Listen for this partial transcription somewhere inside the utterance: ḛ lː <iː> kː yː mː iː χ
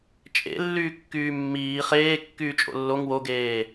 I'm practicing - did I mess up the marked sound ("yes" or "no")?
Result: yes